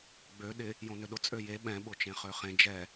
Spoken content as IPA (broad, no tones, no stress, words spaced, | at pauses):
ɡ͡bø ɗɪ | jõnøɗʊ t͡sʼøje ɓɛ̃ ɓʊt͡ʃẽχøχẽ d͡ʒɛ